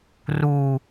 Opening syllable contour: low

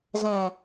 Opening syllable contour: low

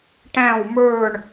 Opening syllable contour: falling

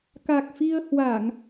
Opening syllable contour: low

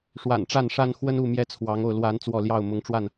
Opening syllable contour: low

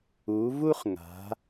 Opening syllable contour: rising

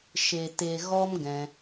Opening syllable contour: low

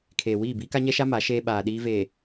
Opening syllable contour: low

